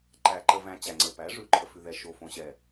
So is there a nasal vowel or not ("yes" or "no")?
yes